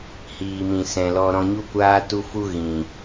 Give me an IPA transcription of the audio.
hiː˨mĩ˨ sɛ̃˨lɔ˧ ɾɔ̃˧ɲu˦kʷaː˦ tu˦fu˦ ɣĩ˨

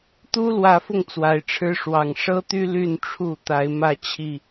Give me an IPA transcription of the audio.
t̪u˦lwä˨˦fʊ˧ŋ t͡swa˨˩ɪ̯ʈ͡ʂʰɻ̩˦ ʂwɑ˨˩ŋ ʂɤ˦t̪y˦ ly˥˨nʈ͡ʂʰu˥˨t̪a˨˦ɪ̯ mä˥˨t͡ɕʰi˥˨

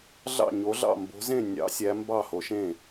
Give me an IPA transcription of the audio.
ɮɑ̰˥˨ɲo˧˥ɮɑ̰˥˨ mbo̤˧˥zẽ˥˨ nʲɑ̰˧˥sʲæ˧˥ mbɑ˥˨ho˧˥ʃẽ˥˨

